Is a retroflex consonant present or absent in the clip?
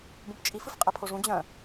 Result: present